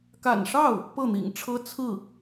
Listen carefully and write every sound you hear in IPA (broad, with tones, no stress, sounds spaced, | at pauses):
k a̰˨˩ n ʂ ɑ˥˩ ʊ̯ | p ɤ˥˩ n̪ ḭ˨˩ ŋ ʈ͡ʂʰ ɤ˥ t͡sʰ ɹ̩˥˩